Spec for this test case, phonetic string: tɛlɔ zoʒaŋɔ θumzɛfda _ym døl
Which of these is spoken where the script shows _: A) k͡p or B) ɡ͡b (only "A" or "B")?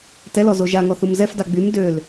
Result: B